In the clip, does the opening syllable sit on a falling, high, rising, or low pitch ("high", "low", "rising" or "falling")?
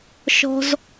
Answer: high